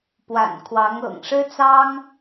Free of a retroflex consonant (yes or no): no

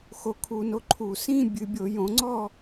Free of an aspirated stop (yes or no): no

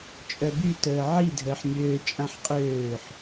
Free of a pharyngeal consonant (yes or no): no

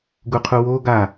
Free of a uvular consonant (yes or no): no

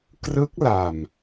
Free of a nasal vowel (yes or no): yes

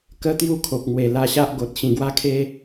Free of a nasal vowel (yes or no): no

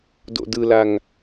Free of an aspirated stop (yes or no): yes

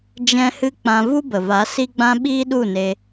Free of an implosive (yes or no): no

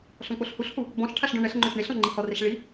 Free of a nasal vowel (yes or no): no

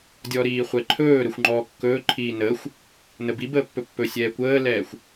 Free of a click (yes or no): no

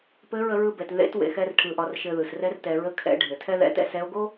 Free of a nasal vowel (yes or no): yes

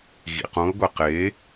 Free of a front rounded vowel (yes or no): yes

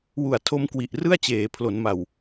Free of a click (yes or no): yes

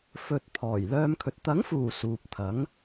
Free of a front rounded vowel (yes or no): no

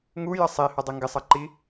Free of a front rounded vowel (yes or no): yes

